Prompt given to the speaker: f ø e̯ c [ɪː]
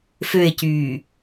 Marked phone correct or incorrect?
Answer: incorrect